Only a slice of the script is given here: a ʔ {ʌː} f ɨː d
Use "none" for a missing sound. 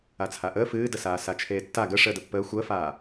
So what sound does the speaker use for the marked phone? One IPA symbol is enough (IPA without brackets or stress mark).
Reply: əː